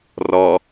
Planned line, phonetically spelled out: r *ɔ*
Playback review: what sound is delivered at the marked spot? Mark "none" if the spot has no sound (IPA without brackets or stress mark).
ɔ